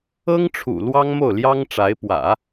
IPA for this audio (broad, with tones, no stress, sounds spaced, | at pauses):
ɤ˥ ŋ ʈ͡ʂʰ ṵ˨˩ l w ɑ˥ ŋ m o˥˩ ʊ̯ l j ɑ˥ ŋ ʈ͡ʂ a˧˥ ɪ̯ p w ä̰˨˩˦